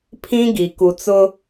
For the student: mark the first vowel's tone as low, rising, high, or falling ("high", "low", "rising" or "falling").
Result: high